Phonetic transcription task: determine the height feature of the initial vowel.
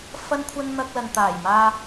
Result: low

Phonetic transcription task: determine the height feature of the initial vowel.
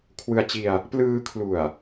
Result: high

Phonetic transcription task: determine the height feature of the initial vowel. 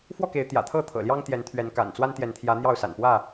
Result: mid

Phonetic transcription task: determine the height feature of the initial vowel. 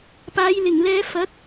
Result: low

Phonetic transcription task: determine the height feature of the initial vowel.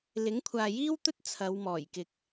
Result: high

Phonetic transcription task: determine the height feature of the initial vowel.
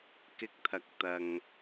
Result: high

